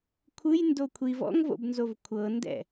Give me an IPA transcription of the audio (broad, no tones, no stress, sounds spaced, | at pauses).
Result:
kʷʰ ɯ j n d o kʷʰ i v ɔ̰ ŋ v o̰ b n z o v kʷʰ ɤ n d ɛ̰